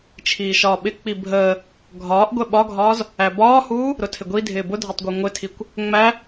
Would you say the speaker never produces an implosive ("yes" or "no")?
no